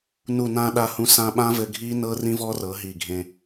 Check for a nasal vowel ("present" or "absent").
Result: present